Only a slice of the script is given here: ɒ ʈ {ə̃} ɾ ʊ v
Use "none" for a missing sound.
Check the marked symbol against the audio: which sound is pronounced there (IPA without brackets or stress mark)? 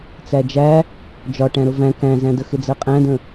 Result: æ̃